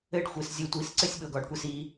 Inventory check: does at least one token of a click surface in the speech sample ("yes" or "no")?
yes